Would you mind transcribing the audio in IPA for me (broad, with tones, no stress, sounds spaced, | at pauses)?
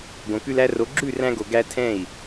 ɡ õ˨ k ʉ˧ l æ˧ r o˨˦ ɡ͡ǁ ʉ˦˨ r æ̃˧ ɡ o˨ ɡ æ˧ tʰ ɛ̃˦˨ i̯